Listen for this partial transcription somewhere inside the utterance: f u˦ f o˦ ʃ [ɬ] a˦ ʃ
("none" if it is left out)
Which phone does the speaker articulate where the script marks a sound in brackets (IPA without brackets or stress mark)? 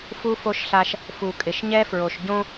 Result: ɬ